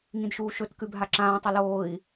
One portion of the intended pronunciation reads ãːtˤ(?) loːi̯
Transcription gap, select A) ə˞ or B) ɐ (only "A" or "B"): B